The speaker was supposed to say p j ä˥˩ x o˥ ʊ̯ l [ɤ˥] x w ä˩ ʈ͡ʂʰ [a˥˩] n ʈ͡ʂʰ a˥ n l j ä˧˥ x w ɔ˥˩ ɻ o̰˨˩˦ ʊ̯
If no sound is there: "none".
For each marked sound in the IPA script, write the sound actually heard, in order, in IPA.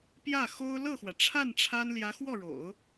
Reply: ɤ˥˩, a˥˩

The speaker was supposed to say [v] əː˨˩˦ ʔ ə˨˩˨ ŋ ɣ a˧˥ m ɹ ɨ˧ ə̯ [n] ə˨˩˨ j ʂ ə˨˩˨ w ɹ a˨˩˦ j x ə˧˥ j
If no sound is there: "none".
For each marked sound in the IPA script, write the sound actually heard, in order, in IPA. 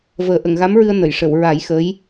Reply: v, n

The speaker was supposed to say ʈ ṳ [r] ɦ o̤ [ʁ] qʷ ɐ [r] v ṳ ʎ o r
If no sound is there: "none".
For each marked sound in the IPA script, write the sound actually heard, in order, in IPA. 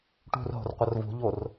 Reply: r, r, r

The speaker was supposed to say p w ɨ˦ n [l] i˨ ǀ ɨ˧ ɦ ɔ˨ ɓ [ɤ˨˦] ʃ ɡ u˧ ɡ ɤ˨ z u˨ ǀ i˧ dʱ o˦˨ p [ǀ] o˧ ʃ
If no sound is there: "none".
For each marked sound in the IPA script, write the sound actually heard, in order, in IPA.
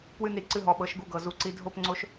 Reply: ɾ, ɤ˨˦, ŋ͡ǀ

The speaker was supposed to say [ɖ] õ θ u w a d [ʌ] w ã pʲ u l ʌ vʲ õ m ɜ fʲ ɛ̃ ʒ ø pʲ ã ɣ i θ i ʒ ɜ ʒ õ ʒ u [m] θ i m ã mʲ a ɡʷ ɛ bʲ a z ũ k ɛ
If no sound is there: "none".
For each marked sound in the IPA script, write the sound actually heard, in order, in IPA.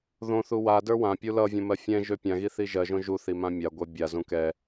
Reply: ð, ə˞, none

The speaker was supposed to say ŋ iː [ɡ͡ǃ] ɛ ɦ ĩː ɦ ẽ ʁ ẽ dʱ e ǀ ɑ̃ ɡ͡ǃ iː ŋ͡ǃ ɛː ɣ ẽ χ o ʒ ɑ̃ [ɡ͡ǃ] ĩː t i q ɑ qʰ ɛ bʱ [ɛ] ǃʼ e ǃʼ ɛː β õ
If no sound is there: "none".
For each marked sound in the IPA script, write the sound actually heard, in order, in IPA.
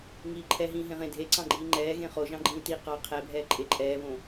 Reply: ǃʰ, ɡ͡ǃ, ɛː

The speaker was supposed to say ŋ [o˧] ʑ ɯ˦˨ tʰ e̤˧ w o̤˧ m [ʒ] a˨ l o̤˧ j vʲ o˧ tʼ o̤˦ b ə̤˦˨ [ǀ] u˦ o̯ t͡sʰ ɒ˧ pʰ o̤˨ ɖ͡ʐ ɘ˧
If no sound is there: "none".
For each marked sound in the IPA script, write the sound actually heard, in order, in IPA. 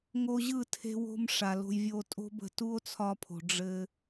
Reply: o˧, ʂ, t

